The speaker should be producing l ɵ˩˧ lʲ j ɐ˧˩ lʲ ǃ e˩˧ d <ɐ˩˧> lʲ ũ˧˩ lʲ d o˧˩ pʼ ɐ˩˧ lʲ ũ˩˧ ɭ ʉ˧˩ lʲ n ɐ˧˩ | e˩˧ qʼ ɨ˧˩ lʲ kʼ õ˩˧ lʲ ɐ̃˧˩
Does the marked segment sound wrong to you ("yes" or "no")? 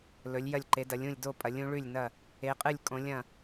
no